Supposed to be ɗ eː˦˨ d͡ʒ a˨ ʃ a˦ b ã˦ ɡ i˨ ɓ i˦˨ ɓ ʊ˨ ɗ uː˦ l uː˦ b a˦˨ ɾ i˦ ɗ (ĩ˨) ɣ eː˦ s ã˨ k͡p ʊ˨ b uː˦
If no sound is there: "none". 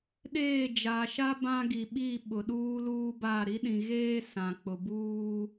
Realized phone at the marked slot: ĩ˨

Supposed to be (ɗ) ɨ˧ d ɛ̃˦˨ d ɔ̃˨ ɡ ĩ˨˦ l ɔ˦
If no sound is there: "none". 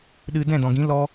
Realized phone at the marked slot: ɗ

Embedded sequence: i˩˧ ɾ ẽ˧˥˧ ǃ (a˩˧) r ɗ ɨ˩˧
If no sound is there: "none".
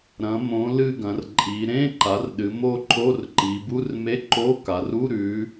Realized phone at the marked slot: a˩˧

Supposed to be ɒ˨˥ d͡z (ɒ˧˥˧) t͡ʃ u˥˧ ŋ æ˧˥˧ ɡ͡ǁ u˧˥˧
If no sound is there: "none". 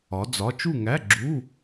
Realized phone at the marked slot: ɒ˧˥˧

